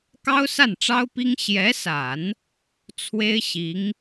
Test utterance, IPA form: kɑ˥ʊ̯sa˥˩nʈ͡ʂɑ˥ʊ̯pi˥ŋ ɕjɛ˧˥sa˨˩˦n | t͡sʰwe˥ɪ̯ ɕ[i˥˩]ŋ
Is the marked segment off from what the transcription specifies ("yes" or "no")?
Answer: yes